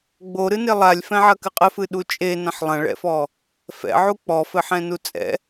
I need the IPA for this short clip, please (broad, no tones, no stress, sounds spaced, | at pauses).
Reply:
ɡ͡b o ɾ ɨ n e lˠ a lʲ f ɛ̃ ʕ ɐ k ɨ qʼ ɘ f ɨ ɗ u t͡ʃʼ e n ɐ̃ ħ lˠ ɐ̃ ɭ ɛ̰ f ɔ | f ɛ̰ ʕ u k͡p ɔ f ɘ ħ ɛ̃ n u t͡sʼ ɛ̰